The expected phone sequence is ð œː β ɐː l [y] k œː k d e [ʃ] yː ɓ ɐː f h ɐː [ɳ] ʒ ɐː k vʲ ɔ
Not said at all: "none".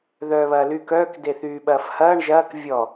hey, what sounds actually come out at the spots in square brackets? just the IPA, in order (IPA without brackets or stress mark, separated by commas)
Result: y, θ, ɳ